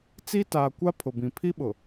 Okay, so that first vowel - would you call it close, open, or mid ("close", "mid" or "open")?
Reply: close